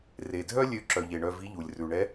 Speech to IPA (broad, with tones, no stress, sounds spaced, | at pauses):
r e˩ dʱ œ˥ lʲ ø˧˥ ǁ œ˩ ʎ e˩ ɳ œ˧ v i˧˥ ʎ u˩ lʲ r ʉ˩ ɳ ɛ˧˥